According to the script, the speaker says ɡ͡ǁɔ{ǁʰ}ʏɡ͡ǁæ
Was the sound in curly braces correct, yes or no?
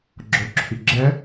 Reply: yes